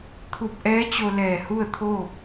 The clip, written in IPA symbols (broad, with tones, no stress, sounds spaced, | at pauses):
t̪ʰ u˧˩ p̚ ʔ ɛː˧˥ t͡ɕ o˧ l ɛː˧˩ h u˥˨ ə̯ t̪ʰ oː˥˨ p̚